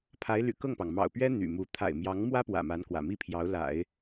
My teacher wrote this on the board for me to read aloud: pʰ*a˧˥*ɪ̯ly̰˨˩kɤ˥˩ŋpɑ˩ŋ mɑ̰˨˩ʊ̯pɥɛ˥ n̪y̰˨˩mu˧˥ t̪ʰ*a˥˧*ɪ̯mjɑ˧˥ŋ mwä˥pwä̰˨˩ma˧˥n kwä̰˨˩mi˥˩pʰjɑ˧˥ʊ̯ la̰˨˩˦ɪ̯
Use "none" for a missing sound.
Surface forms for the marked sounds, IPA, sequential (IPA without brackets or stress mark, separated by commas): a˧˥, a̰˨˩